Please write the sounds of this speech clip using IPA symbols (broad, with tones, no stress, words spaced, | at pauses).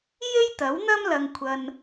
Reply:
je˥jt̪ɐ˨˥wn̪ɐ˥m lɐ˧ŋkʷʰɐ˧n